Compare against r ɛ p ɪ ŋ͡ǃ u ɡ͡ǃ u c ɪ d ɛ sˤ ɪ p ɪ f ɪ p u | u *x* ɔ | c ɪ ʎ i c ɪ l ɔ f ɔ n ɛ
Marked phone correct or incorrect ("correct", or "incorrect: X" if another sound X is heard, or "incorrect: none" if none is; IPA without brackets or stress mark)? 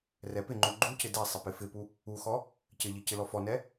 correct